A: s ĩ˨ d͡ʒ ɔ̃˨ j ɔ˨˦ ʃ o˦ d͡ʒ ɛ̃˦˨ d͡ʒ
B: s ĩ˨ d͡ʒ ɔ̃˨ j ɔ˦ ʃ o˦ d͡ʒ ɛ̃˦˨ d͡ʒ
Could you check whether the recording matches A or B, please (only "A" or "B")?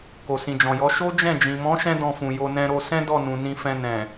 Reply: A